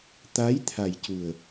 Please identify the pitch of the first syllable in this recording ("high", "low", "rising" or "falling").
rising